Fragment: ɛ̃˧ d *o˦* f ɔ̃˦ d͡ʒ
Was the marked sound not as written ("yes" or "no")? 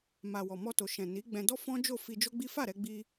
yes